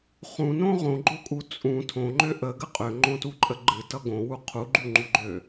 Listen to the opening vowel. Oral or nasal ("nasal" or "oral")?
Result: nasal